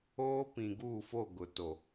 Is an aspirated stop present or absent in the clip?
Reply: absent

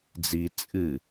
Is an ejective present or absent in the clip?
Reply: present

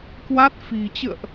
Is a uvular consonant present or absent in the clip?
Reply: absent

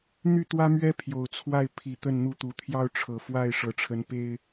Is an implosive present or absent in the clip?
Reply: absent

